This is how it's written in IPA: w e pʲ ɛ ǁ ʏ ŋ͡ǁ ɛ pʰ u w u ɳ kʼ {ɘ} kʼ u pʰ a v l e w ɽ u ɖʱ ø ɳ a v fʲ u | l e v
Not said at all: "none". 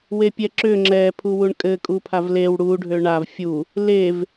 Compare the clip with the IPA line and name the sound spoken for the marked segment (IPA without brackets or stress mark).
ɘ